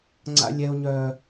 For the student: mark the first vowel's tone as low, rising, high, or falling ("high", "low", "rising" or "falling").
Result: high